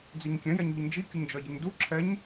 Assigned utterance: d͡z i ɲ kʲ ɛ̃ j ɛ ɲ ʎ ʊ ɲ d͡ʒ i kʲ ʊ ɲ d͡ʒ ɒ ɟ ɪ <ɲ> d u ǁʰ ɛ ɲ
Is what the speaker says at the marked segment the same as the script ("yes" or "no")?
yes